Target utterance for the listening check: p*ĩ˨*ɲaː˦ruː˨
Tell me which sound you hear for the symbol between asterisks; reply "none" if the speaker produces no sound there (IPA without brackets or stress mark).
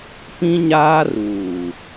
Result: ĩ˦